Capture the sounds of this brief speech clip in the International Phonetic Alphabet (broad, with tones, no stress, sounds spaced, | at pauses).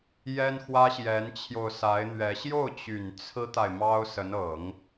j ɛ˥ n x w ä˥ ɕ j ɛ˧˥ n t͡ɕʰ j o˧ ʊ̯ s a˧˥ ɪ̯ n̪ ɥ ɛ˧˥ ɕ j o˥˩ ʊ̯ t͡ɕ y˨˩ n t͡sʰ ɹ̩˥ t̪ a˨ ɪ̯ m ɑ˥ ʊ̯ s ə˧˥ n ɤ˨˩˦ ŋ